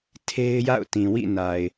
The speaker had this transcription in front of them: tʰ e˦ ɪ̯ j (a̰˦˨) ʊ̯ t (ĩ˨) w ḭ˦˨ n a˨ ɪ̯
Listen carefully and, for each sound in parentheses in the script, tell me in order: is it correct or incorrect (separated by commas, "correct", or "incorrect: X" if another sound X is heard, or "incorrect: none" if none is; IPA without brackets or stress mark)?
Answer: correct, correct